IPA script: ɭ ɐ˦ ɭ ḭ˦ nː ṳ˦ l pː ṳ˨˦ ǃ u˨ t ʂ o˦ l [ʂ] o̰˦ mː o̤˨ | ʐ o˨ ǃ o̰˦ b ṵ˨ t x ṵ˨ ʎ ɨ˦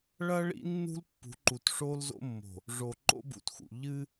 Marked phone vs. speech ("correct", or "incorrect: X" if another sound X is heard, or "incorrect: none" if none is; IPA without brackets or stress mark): incorrect: z